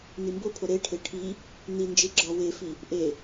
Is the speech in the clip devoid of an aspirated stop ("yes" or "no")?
no